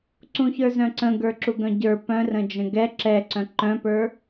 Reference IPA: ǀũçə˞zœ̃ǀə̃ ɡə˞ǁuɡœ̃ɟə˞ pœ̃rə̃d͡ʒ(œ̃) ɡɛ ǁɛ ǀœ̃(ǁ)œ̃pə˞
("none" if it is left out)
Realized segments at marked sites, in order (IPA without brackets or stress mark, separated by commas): ə̃, ǃ